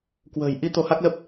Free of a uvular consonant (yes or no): yes